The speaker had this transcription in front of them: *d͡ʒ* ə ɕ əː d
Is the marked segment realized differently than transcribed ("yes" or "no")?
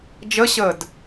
no